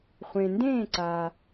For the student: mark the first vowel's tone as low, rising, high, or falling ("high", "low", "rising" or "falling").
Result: low